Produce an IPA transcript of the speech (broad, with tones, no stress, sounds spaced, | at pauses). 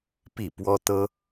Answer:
p i˥˩ p w ɔ˥ t̪ ɤ˥